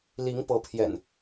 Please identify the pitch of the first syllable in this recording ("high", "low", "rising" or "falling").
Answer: rising